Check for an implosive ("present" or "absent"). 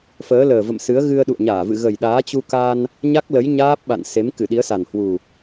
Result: present